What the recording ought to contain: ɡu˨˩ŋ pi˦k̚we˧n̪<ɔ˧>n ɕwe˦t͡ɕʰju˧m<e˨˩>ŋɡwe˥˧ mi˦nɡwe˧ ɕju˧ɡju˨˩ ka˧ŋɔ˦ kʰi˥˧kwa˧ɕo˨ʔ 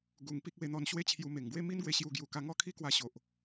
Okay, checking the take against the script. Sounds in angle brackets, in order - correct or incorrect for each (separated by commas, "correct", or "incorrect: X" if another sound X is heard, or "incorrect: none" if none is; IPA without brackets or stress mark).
correct, correct